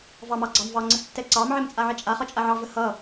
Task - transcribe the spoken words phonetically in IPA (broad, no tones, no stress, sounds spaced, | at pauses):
v ɑ m ɑ ɡ͡ǀ ɑ m v ɑ ŋ͡ǀ ə s tː ɛ ǀ ɑ m ʕ ɛ m t͡sʼ a ʕ ɛ t͡ʃʼ a χ ʌ t͡ʃʼ a ʕ ɑ v ə h ʌ